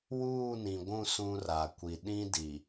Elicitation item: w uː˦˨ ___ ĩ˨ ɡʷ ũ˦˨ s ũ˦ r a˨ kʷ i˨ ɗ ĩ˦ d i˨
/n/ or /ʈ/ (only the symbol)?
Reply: n